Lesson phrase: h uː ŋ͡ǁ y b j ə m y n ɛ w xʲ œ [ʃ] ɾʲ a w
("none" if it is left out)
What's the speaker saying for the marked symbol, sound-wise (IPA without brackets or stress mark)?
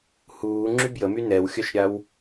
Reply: ʃ